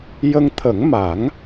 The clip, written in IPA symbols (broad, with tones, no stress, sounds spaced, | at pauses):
j ə˧ ŋ t̪ʰ ə˨˩˦ ŋ m a˨˩˦ ŋ